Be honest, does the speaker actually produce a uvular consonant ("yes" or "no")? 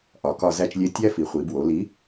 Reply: yes